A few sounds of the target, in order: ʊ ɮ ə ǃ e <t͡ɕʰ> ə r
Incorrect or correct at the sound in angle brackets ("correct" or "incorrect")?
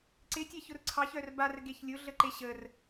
incorrect